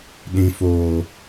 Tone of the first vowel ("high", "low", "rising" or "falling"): high